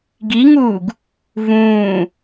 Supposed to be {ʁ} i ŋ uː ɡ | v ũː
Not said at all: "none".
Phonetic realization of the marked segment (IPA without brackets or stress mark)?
ɡ